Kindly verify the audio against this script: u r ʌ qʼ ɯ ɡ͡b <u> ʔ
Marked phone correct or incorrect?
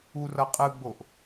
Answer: incorrect